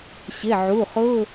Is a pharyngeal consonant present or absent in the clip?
present